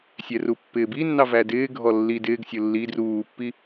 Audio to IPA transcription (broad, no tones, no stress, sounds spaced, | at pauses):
sʲ ɛ r u pː ɪː b i nː ɑ v æ d ɪː ɡʱ ɔ lː i d ɪː ɡ sʲ ʊ lː i d r uː pː i